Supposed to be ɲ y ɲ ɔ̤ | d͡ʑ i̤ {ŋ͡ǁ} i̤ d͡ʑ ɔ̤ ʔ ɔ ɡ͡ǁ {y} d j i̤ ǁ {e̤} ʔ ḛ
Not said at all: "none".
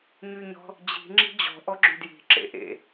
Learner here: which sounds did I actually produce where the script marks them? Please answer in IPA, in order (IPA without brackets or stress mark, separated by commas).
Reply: ŋ͡ǁ, y, ḛ